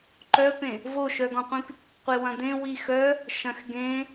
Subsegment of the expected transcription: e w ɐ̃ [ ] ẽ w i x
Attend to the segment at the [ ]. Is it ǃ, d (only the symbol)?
d